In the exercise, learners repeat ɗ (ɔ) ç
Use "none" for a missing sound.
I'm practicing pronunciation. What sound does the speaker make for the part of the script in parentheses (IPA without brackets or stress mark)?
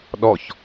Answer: ɔ